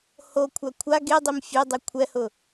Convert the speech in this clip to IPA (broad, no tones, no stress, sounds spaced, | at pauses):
h o kʷʰ a kʷʰ a ɡ e dˤ i m fʲ e dˤ i kʷʰ ɛ h ʊ